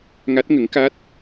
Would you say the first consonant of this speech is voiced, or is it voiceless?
voiced